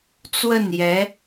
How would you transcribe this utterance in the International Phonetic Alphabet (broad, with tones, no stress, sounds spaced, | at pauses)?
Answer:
t͡s w ə˥˩ n j ɛ˧˥